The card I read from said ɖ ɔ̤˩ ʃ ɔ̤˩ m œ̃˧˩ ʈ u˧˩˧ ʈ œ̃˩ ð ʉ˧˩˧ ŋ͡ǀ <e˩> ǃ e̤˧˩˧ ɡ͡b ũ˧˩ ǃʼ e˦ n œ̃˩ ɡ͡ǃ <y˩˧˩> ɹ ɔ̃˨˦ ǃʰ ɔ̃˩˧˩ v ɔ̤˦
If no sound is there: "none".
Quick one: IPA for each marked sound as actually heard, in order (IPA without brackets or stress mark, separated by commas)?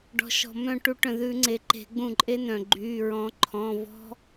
e˩, y˩˧˩